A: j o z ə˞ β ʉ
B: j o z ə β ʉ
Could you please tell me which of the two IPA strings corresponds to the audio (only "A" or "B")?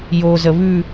B